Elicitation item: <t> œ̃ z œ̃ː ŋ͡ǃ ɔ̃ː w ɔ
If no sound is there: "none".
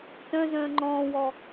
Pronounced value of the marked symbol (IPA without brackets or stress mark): t